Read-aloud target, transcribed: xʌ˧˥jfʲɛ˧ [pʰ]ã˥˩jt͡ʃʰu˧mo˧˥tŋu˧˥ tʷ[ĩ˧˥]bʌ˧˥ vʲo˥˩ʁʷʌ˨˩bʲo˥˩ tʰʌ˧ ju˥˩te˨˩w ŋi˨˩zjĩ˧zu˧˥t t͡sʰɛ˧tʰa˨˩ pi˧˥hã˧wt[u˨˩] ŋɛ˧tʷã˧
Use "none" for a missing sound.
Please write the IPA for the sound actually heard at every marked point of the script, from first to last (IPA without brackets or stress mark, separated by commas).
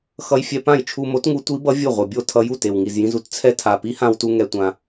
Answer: p, i˧˥, u˧